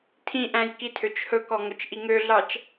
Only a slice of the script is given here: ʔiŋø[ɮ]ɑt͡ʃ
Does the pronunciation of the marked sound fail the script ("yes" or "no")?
no